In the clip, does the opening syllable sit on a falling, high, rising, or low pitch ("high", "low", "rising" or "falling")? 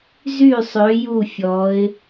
falling